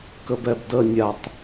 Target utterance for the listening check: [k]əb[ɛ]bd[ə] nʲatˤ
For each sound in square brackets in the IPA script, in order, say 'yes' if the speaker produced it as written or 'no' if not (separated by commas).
yes, yes, yes